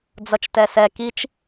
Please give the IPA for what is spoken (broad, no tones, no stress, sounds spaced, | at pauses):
d͡z ʌ t͡ʃ t ɛ s ɛ k i t͡ʃ